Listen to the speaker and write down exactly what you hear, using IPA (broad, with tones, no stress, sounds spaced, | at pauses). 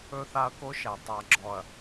ɵ˦ θ a˦ ɐ̯ k o˦ ʃ æ˨ tˤ a˨ ɡ͡ǁ ɔ˨ ɐ̯